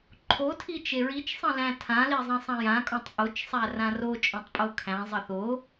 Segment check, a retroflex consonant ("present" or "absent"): absent